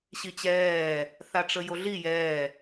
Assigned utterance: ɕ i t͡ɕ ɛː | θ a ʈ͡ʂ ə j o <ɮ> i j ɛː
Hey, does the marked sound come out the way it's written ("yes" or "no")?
yes